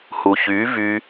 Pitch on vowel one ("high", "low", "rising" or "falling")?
low